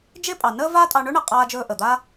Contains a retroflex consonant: yes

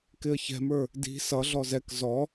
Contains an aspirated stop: no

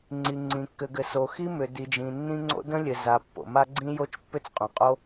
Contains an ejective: yes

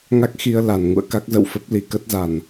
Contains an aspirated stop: no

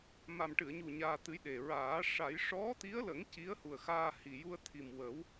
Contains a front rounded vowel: no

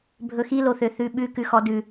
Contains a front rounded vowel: yes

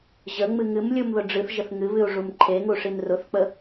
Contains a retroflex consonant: yes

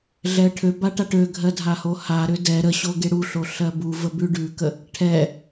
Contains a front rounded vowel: yes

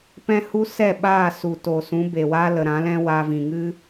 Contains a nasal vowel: yes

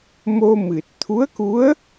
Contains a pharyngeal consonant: no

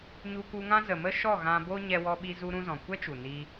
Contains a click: no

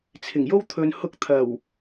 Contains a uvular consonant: no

